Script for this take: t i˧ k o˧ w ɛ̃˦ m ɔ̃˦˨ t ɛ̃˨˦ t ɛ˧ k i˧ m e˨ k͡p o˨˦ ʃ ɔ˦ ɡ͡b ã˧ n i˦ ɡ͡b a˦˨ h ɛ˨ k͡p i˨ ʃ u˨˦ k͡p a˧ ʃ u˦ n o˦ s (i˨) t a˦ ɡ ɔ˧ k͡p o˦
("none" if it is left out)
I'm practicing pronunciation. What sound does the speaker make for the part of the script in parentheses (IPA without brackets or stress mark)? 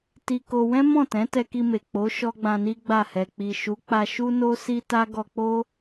i˦